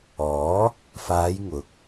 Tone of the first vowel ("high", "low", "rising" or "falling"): rising